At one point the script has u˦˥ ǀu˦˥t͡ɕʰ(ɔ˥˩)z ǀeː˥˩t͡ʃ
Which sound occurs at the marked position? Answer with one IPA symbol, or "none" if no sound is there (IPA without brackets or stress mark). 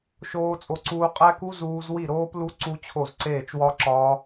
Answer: o˥˩